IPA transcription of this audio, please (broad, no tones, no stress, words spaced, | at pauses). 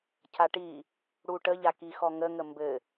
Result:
cʰaʈi | ɽuʈəʎa kixɔŋəŋə mbɘ